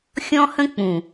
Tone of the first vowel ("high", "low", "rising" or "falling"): high